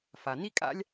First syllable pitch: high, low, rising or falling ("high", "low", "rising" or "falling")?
low